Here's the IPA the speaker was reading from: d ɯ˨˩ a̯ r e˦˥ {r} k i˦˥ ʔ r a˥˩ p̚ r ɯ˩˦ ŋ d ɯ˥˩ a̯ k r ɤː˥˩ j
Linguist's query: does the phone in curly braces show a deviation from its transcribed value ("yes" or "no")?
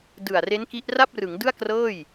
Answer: yes